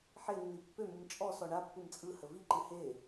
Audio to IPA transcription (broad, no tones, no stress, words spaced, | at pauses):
ħenːi pːømɯm t͡ʃʼɔ sɔɳa pːɯmt͡sʼɯ həviǃɨ he